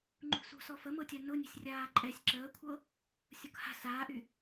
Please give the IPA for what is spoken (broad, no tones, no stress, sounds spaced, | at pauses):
ŋ͡ǃ ṳ s ṳ s ɔ f ə m ɤ tʲ a n ʊ nʲ ə̤ sʲ rʲ aː ǃʼ ɛ sʲ ǁ əː kʷʰ ɤ | sʲ ʊ k h a̤ s aː ʔ y